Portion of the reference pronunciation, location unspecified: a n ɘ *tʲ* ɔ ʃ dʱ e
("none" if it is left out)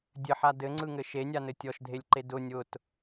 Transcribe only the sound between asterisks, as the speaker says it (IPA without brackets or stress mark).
tʲ